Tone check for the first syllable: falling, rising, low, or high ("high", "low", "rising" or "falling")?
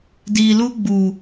low